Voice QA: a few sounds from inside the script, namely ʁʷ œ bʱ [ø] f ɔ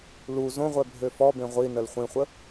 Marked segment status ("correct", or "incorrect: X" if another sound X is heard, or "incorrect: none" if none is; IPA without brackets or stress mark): correct